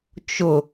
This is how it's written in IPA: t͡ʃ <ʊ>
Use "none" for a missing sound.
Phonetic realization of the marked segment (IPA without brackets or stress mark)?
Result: ʊ